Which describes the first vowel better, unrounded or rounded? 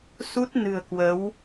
rounded